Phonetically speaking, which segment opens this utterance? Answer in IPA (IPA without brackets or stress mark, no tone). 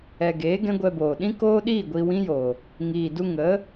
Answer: ɛ